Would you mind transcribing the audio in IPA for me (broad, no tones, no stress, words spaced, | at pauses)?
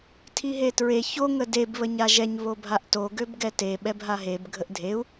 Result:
tʰiɦetɹe ço ŋədeb βəɲaʒɛɲ βobʱaʔto ɡøbɡɛte ɓɛbɦaɦeb ɡʱəʔdʱeu̯